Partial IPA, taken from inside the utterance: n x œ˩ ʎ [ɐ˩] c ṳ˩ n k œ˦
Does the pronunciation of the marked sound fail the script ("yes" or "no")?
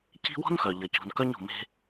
no